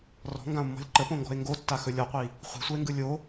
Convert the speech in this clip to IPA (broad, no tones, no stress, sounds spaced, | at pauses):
r ɔ̤ ŋ ɡ ã o̯ mː ɔ̤ lʲ ǃ ə p õ ŋ ɡ ɔ̤ e̯ ŋ ɡ o tː a x ɵ lʲ ɔ qʷ i | χʷ i̤ sʷ ɤ e̯ ŋ ɡ ɯ lʲ o